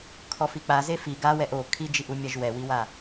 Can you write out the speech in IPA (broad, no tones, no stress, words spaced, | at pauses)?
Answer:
kʰɔfik͡pa zefi ɡawɛʔ o kʰid͡ʒiʔumʲaʒ wɛwiwa